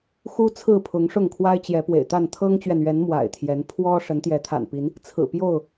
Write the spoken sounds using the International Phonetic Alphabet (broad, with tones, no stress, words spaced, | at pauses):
xu˦t͡sʰɹ̩˥˨ pʰʊ˨˦ŋ ʂʊ˥˨ŋkʰwa˦ɪ̯t͡ɕjɛ˨˦ pwḛ˨˩ɪ̯t̪a˥˨n t̪ʰɤ˦ŋt͡ɕɥɛ˨nɥɛ˨˦n mwa̰˨˩ɪ̯t̪ʰjɛ˨˦n pʰwɔ˦ ʂə˨˦nt̪jɛ˨˦t̪ʰa̰˨˩npi˨˦n | t͡sʰɹ̩˨˩pjo˥˨ʊ̯